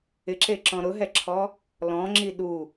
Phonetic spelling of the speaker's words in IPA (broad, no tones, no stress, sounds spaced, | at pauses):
ɪ ǁ e ǁ ɔ̃ ɾ ʊ ɦ ɛ ǁʰ ɔ | l ɔ̃ ŋ͡ǁ i ɗ u